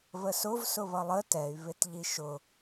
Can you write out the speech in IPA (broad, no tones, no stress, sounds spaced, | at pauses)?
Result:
β ə s ʊ v s ʊ β ʌ lˠ ə t ɛ y̯ β ɪ t ʎ i ʃ ʊ